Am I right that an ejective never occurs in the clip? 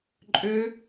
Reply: no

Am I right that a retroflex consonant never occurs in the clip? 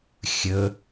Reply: yes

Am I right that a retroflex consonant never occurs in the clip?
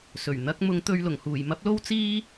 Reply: yes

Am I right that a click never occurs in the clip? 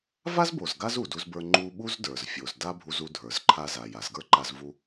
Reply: no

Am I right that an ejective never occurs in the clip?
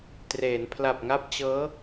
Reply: yes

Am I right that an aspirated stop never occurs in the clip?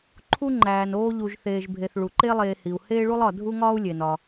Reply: no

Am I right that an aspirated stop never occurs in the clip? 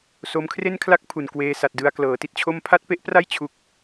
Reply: no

